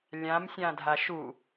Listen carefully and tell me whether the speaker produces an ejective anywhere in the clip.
no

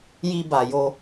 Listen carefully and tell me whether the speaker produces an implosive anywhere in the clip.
no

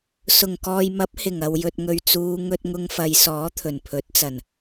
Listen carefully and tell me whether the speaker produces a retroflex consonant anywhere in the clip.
no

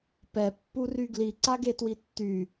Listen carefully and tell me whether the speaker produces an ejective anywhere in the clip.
no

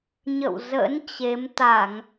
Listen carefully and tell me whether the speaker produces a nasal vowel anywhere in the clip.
no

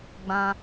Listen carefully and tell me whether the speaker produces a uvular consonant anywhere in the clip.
no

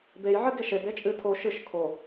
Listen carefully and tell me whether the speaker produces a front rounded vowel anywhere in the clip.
no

